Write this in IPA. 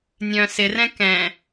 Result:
nʲ œ̃ s ɪ r ɛ̃ k ɛ̃

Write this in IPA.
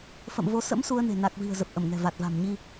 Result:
f ə̰˧˨ m v o˨˦ s ə̰˧˥ m s u˧ ə̯ n e̤˨˩ n a˨˩ k̚ v i̤˨˩ ə̯ z ə˨˩ p̚ ʔ ə˧˩ m ŋ ɛ̤˨˩ v a˨˩ t̚ v a̤˨˩ m ɲ i˧

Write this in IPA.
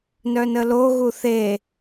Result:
n œ n ə l o ɣ u θ e

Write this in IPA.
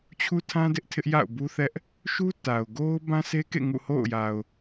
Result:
t͡ɕʰ u˦ tʰ ã˦ d ɪ˦ ʔ tʰ ɪ˦ ʔ j a̰˦˨ ʊ̯ b u˦ θ ɛ˦ ʔ | ʃ u˦ t a˨ ʊ̯ ɡ o˦ ʊ̯ b ã˦ s e˦ k ḛ˦˨ ŋ ṵ˦˨ h o̰˦˨ ʊ̯ j a˨ ʊ̯

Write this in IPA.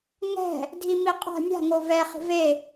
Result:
ŋ ɛ̤ | dʱ i m i qʼ a̤ mʲ a̤ ŋ o v ɛ χ i̤ v e

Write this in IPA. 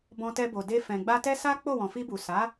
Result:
b ɔ̃˧ t ɛ˧ b o˨ d e˧ f ɛ̃˨ ɡ͡b a˧ t ɛ˦ s a˦ k͡p o˦˨ w ɔ̃˨ f i˧ b u˨ s a˨˦

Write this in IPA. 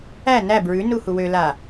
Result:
æ n æ b ɹ ʉ n u h u w ø l a

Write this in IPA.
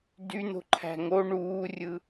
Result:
d y n̪ o̤ ǃʰ æ̤ ŋ o ɳ uː rʲ ɯ

